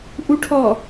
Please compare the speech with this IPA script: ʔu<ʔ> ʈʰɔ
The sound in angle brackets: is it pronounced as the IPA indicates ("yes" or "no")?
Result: no